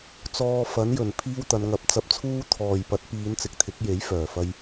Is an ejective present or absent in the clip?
absent